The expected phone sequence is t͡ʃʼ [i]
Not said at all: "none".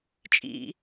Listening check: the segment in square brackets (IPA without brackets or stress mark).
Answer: ḭ